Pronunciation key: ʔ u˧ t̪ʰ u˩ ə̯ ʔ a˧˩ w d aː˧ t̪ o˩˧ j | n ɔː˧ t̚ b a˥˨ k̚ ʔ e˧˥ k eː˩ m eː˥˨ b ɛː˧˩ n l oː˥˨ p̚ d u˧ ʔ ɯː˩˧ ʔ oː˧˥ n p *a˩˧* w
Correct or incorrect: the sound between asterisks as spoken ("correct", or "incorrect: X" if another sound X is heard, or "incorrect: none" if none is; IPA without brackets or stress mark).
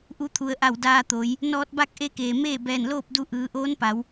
correct